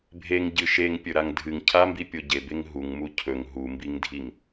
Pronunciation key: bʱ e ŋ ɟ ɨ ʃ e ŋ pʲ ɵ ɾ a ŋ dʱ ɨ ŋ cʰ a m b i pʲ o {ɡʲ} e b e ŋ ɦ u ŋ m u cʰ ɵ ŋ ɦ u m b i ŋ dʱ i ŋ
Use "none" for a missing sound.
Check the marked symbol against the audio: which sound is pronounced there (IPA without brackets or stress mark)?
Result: ɟ